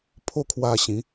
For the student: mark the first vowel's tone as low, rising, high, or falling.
falling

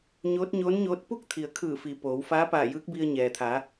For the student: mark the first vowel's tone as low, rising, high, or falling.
rising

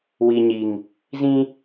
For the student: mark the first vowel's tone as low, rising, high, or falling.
low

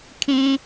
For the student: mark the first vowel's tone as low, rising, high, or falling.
high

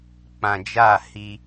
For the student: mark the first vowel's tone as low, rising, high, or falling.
low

